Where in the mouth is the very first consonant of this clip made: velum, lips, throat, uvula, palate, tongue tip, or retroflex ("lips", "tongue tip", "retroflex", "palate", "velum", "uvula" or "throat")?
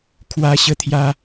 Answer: velum